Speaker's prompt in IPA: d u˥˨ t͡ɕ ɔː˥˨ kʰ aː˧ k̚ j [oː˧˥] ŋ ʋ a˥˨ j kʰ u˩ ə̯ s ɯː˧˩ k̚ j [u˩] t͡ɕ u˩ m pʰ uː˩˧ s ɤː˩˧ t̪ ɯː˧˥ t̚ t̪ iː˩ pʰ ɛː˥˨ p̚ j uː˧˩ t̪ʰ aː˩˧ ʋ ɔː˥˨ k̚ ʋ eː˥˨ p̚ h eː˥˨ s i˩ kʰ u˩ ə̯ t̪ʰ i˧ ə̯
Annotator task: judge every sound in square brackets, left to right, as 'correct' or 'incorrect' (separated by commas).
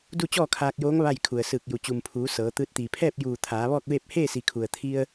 correct, correct